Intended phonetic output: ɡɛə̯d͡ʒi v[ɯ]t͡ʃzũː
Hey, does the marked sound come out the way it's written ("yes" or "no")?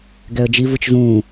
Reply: yes